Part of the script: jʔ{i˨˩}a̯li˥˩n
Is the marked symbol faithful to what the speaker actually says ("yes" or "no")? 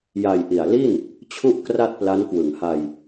yes